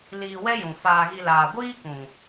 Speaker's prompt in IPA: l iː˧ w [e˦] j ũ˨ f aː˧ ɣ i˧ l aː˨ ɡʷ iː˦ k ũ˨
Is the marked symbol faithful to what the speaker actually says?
no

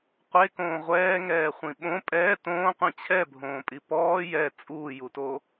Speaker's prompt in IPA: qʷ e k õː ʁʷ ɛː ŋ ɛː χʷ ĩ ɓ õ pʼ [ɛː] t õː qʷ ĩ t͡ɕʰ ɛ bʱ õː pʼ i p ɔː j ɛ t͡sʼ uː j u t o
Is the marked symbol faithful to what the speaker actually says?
yes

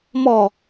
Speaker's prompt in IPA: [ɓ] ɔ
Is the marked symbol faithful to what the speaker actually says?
no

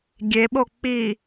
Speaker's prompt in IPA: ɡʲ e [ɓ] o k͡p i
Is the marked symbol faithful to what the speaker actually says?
yes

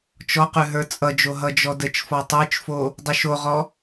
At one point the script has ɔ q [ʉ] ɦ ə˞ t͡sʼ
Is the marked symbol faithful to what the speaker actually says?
yes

